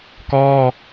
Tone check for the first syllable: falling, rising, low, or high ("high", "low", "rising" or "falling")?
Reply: high